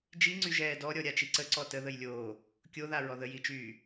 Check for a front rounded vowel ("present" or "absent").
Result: present